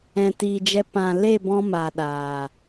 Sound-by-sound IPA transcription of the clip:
ɛ̃˨ t i˨ d͡ʒ ɛ˧ p ã˨ l e˦˨ b ɔ̃˧ m a˨ ɗ aː˨

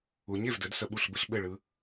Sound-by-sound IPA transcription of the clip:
u˩˥ ɲ e˩ v d ɘ˩˥ d s ə˧ ɓ u˥˩ ɬ b ɘ˥ ɬ ɓ ɘ˥˩ ɭ ɯ˧

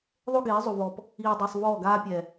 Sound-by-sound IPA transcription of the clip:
ðˤ o˦ ɡ eː˨˦ zˤ u˨ v ɔː˨ p | iː˨ dˤ e˨ sˤ v ɔː˦˨ ɡ aː˦ pʲ ɛː˨

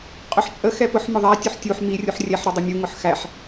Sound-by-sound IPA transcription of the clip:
qʼ ʊ ħ t͡ʃʼ ə x ɛ p ʊ ħ m ʊ ðˤ æ tʲ ɵ ħ tʲ u ħ m i rʲ u ħ rʲ ɛ ħ ɾ ɵ dˤ u mʲ u ŋ ʊ ħ x æ ħ

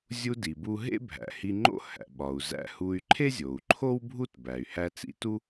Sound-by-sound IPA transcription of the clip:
zʲ u˧ d i˩ b u˧ ɦ ḛ˥ bʱ æ̰˩ h i˧ ŋ͡ǃ o̰˥ h æ̰˩ ɓ ɒ˩ u̯ z æ̰˧ h u˧ y̯ ǃʰ e˥ zʲ o˩ u̯ ǃʰ o˥ w bʱ u˥ t b æ˩ y̯ h æ˧ t͡s ḭ˧ t u˥

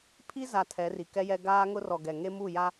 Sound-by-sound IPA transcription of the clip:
pʰ i˦ z a˨ tʰ ɛ˨˦ r i˨ k ɛ˦ j ɛ˦ ɡ aː˦ ŋ ʊ˦ r ɔ˨ ɡ ɛ˨ ŋ e˦ m u˦˨ j a˦

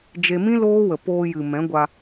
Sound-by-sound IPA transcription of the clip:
d͡ʒ e˧ m ĩ˦ l oː˦ w ə˨ p oː˧ j ɨ˨ m ɛ̃˨˦ ɡʷ a˧

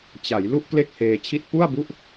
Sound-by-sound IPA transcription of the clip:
t͡ɕ a˩˦ j l u˥˩ ʔ k l e˥˩ k̚ h eː˧ t͡ɕʰ i˥˩ t̚ p u˥˩ a̯ b u˥˩ ʔ

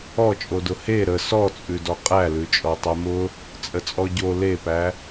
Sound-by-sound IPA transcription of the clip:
ɔ t͡ʃʼ o d ʊ h e ɾ ə s ɔ t͡sʼ ʉ d ɔ qʼ æ l ʉ t͡ʃʼ ɔ tˤ ɛ m ʊ | t͡sʼ ə t͡sʼ ɔ ɟ o l e p æ

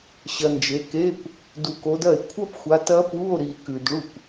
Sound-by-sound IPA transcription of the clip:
ɕ ɐ˨ n d͡ʒ e˨˦ k e˧˥˧ kʷ | d u˨ k o˨˦ d ɐ˥˩ e̯ kʷʰ ɐ˦˥ p xʷ a˨˦ t ɐ˦˥ p u˧˥˧ o̯ ɾ i˨ k ʉ˨ d ɭ u˥˩ kʷ

